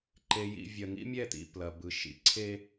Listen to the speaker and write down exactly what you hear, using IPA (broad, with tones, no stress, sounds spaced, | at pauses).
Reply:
ǃ e˨ j ḭ˨ vʲ ɐ˨ ŋ ḭ˦ mʲ ɛ˦˨ t̪ ḭ˨ p l ɐ˨ b ɯ˨ ʃ ḭ˨ ǀʰ e˦